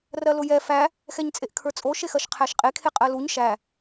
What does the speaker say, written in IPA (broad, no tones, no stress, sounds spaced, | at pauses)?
r ɜ l ʊ j ɛ f æ | x ɛ ɲ t͡sʼ e ʔ kʰ ə˞ t͡sʼ o ʃ e x ɜ ʃ qʰ æ ʃ qʼ e kʰ e qʼ ɜ l u ɲ ʃ æ